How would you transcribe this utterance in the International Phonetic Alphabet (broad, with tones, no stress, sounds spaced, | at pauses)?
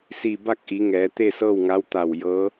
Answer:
s i˧˩ b a˥˨ k̚ ʔ i˩˧ ŋ ɛː˩˧ t̪ e˥˨ s ɤː˥˨ w ŋ a˧˥ w t̪ a˧˩ w j ɤː˧˥